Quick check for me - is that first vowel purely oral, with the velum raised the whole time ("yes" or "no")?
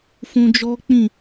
no